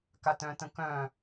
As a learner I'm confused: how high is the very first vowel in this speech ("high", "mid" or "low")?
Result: low